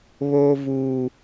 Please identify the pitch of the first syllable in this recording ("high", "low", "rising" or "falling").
high